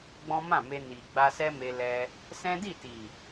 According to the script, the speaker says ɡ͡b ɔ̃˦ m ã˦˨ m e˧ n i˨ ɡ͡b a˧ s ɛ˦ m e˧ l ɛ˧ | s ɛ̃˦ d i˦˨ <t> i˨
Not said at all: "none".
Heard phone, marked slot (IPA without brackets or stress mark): t